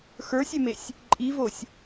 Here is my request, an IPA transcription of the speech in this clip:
x ə˞ sʲ ʏ m e sʲ | ǃʼ i v o sʲ

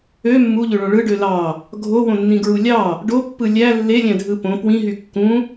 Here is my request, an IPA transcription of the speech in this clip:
ø mː u ʎ ø ɭ õ ɭ ɯ ɖ ø l ɑ | ɡʱ o w õ nː ĩ ɡ ɹ u lʲ ɑ | ɖ o pː ɯ lʲ æ lː e lʲ æ̃ dʱ ɯ p õ p w ĩ ɦ y kː ũ

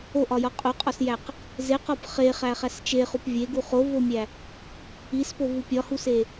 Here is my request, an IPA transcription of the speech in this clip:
o ʔ ɒ j ɒ qʼ o qʼ ɒ s j æ q | z e q ɒ p χ e χ æ χ æ s t͡ʃ e χ u p vʲ e ɡ u χ o v o mʲ æ | i s p o v u pʲ ɒ h u s e

